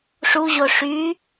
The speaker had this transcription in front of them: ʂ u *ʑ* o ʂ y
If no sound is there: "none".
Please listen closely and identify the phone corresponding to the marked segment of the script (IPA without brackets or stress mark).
ʑ